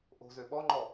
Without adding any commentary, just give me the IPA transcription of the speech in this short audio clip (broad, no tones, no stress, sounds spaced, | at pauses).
ʔ o̤ z ø ɓ ɔ ŋ͡ǃ ɔ